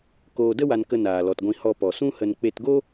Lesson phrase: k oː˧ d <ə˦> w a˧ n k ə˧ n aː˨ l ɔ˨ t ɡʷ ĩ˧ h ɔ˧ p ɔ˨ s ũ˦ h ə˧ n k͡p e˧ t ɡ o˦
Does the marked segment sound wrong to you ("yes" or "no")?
no